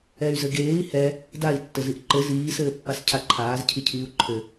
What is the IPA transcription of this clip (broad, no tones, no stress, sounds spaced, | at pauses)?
ɛ y̯ z ɘ ɡ eː i̯ h ɛ | d a i̯ tː ɘ z i ʔ ǃ ɘ z iː s ɘː pː a s cʰ a ǃʰ aː z cʰ i cʰ iː u̯ ǃʰ ɘ